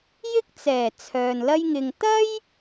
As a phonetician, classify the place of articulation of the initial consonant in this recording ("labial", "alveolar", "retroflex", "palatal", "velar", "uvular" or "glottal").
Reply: palatal